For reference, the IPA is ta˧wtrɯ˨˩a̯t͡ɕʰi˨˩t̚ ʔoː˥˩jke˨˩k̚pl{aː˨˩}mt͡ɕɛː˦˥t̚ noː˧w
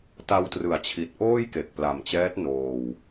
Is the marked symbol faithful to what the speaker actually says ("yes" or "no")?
no